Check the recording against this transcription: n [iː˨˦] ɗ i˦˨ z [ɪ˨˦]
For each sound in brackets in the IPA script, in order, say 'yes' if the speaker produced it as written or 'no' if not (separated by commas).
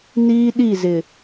no, no